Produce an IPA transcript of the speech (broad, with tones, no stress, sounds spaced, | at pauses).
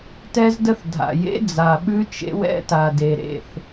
t ɛ˦ z d ə˦ θ dʱ a̰˨ j ḛ˦ d͡z a˨ ɓ ʉ˦ t͡ʃ ḛ˦ w ɛ̰˦ t a˨ d e˨ ɾ ḛ˦˨ θ